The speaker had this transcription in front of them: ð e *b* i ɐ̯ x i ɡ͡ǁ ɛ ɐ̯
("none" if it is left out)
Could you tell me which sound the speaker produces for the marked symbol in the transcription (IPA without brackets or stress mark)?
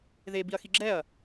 b